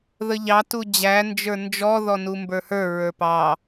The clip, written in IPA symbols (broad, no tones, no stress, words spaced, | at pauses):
ðəʎɑ tud͡ʑæ nd͡ʒə˞nd͡ʒɔ ðɔnumbə˞hə˞ ɹə˞pɑ